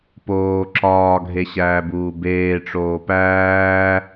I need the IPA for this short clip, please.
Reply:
poː ǁɒːɡʱeɕæːbuː beːʈ͡ʂoː pæː

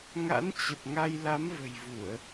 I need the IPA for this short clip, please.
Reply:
ŋa̰˧˥nt͡ɕə˨˩p̚ŋa˧j la˨˦mvə̤˨˩jvu˧˩˨ə̯

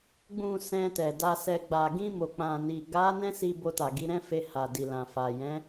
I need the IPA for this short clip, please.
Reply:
ɡ͡bũ˨ sɛ̃˧tɛ˨ da˧sɛ˧ ɡ͡ba˨ɡĩ˧ mo˨k͡pã˨ni˨ ɡa˨˦ nɛ̃˦si˧ bo˧ta˨ɡi˨˦ɾɛ̃˦ fe˧ha˨ di˨lã˨fa˨ jɛ̃˨˦

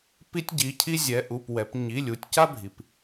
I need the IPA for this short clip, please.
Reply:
pi˥tʲɟi˩˧˩cʰi˥ zʲɛ˩˧ʔu˩˧˩p wɛ˩˧p ɲi˩˧˩lʲu˩˧tʲca˥bʱi˩p

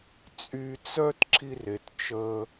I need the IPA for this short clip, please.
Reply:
t͡sʼy˧t͡sœ˦t ǁʰi˦re˨t t͡ʃə˧

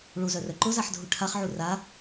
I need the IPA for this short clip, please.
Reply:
ɭuzœrœ ǃʊzaħdʱu ʈʰaχʕu ra

